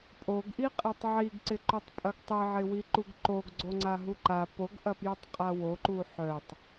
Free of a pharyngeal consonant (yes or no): no